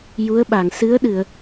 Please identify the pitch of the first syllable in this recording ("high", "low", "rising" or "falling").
rising